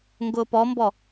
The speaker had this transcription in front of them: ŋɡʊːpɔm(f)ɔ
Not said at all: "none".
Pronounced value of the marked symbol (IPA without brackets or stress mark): b